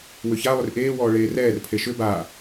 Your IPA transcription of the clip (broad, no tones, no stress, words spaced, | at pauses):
wʏça lˠʏrʔeː wɔːɭeːrɛːr pʰeʃʏ ba